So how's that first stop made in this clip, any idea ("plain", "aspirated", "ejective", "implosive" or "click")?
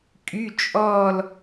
ejective